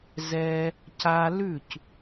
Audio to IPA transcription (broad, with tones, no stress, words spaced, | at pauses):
zɛ˧ | ca˧lʉ˦˨c